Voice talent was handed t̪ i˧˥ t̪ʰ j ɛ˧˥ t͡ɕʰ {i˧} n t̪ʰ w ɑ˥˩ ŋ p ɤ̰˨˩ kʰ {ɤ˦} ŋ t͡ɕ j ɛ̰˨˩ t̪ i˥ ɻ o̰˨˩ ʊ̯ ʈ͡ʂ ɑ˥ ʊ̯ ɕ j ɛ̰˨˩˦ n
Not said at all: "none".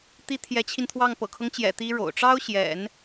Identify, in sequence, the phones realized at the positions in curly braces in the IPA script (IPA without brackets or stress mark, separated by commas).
i˧, ɤ˦